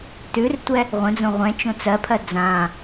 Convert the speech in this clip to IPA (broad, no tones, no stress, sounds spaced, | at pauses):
t ʉ r tʷ ɛ | ʁʷ ə̃ d͡z õ ʁʷ ɛ̃ t͡ʃ õ t͡s ɜ pʰ ɜ d͡z ã